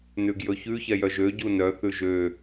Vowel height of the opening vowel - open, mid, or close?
close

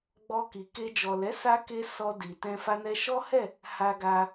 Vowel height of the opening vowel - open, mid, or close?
mid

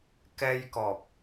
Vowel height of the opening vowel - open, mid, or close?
mid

